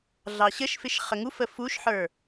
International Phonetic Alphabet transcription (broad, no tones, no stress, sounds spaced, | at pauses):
ɮ ɑ ɕ ə ʃ f ɪ ʃ χ ə ŋ u f ə f u ʃ ħ ə˞